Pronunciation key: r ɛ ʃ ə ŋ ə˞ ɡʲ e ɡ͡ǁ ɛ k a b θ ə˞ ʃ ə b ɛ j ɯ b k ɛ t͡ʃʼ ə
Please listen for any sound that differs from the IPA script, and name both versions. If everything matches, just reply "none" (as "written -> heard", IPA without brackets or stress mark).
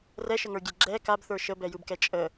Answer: none